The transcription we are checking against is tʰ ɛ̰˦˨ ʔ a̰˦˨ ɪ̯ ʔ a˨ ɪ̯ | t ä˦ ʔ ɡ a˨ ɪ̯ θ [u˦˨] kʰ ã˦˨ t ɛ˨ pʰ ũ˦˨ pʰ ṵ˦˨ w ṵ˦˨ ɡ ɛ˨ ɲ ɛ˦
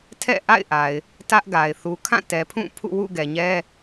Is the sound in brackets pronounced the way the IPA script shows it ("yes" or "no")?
no